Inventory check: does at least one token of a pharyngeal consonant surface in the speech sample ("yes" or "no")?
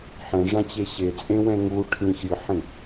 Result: yes